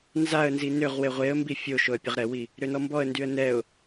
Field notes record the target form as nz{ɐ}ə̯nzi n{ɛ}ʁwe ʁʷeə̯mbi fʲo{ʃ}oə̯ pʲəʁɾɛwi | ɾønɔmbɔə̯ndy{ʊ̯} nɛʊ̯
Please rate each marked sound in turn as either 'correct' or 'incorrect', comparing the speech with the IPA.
incorrect: a, incorrect: ø, correct, incorrect: ə̯

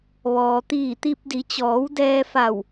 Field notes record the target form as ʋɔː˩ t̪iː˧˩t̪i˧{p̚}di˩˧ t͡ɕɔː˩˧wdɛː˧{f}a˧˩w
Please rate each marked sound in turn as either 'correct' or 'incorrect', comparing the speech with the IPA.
correct, correct

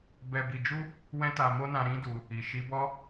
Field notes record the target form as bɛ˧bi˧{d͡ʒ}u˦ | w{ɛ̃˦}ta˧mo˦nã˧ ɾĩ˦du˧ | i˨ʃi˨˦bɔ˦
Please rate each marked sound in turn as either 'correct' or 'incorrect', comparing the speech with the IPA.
correct, correct

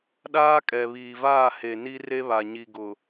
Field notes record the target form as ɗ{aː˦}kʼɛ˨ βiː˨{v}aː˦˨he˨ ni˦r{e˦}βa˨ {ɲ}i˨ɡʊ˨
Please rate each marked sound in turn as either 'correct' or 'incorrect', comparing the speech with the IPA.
correct, correct, correct, correct

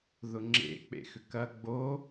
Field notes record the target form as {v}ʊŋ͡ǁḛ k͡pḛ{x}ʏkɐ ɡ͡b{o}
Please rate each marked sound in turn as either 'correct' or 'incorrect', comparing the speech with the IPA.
incorrect: ð, correct, correct

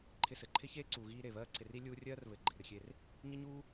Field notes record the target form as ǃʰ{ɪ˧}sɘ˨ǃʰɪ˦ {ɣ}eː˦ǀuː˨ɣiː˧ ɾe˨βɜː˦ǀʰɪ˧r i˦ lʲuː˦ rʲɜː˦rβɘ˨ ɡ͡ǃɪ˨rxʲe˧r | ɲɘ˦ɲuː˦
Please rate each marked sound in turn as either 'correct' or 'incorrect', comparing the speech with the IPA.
correct, incorrect: ç

